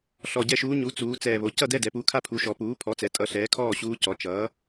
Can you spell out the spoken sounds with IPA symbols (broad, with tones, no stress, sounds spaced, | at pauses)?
ɬ ɔ˨˩ ɟ ɛ˥˨ ʃ uː˧˥ ɲ u˩˥ t͡s uː˩˧ t͡s ɛː˨˩ β o˩˧ c ʌ˥˨ d ɛ˥˨ d ɛ˩˧ p u˩˥ kʰ a˥˨ pʰ u˩˥ ʃ ɔ˩˧ p uː˩˥ pʰ ɔ˩˥ t͡s ɛ˩˧ tʼ ʌ˩˥ ɬ ɛː˩˥ kʰ ɔː˥˨ ɕ uː˧˥ c ɔ˩˧ t͡ʃ ʌː˩˥